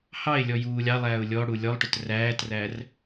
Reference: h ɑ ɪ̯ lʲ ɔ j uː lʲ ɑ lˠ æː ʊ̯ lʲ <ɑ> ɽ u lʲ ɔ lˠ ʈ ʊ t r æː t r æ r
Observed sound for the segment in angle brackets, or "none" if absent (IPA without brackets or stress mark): ɔ